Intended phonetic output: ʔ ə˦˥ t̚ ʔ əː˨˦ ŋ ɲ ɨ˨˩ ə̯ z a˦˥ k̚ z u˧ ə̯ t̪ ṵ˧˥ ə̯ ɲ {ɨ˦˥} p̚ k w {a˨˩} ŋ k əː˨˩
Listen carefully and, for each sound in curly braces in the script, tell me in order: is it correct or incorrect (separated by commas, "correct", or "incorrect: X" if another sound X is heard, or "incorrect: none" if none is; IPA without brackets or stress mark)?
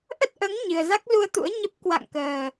incorrect: ə˦˥, incorrect: a̰˧˨